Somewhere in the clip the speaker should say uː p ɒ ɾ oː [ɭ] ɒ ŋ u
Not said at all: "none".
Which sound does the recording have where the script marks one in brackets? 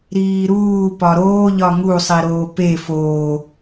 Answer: ʎ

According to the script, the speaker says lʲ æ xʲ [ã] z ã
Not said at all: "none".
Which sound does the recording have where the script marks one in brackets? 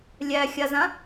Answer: a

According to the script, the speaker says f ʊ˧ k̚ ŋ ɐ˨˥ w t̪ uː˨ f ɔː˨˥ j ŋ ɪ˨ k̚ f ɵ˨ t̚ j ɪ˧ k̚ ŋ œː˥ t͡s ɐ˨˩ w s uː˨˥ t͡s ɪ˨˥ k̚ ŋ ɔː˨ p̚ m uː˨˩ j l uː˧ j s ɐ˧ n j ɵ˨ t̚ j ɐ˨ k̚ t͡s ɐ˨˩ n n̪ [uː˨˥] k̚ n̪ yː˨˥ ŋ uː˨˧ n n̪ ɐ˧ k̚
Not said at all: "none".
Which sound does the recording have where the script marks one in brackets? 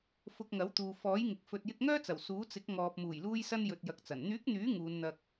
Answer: yː˨˥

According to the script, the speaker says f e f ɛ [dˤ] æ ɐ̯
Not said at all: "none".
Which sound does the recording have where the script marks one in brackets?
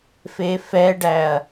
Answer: ɖ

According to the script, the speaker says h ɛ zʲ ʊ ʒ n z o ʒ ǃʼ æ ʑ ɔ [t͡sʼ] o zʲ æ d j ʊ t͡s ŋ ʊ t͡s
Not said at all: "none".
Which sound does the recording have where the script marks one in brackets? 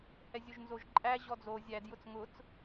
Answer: d͡z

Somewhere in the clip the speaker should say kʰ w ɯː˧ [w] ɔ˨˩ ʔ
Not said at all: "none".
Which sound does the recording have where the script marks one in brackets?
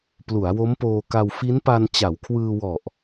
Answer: w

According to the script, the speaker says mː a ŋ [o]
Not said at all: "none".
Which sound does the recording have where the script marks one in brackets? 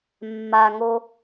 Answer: o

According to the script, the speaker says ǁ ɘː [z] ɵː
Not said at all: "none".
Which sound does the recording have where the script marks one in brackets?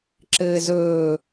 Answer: z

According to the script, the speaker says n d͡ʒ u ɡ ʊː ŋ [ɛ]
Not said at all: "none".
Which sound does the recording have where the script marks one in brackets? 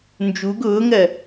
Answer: ɜ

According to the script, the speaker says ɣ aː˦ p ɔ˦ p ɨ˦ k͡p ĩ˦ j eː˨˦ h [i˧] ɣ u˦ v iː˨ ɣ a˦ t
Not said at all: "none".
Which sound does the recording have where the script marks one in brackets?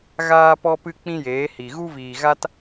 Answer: i˨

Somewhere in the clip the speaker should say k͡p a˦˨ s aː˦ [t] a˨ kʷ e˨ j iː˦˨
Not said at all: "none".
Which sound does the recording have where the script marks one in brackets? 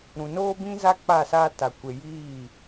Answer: t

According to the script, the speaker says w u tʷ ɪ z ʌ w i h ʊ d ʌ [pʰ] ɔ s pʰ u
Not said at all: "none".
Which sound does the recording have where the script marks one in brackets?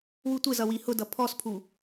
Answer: pʰ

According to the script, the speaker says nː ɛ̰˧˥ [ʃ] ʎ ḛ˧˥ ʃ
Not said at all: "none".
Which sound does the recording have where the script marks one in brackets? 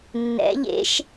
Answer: none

